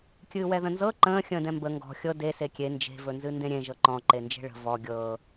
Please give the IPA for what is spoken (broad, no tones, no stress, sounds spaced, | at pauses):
kʲ ɨː w ɛ ð ə̃ n z ɤ ǃ ə̃ː xʲ ə̃ː d ɛ̃ m b ə ŋ ɡ ɔ̤ xʲ ɤ d e s e kʲ e n d͡ʒ e̤ v ɵ n z ɨ n d ẽ ɾʲ ẽ ʒ ɤ ǃ ɔ̃ ǃ e n d͡ʒ e̤ ɭ ə̤ v ɔ ɡʲ ɤ